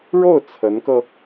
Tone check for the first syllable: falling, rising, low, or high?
falling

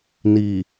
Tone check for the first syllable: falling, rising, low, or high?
low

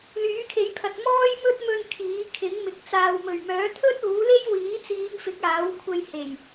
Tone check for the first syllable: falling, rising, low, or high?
rising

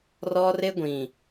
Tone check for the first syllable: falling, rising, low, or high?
high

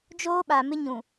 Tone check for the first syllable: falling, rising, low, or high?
high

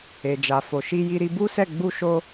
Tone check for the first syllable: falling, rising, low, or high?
low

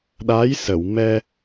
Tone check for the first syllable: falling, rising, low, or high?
rising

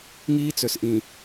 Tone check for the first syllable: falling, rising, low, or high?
high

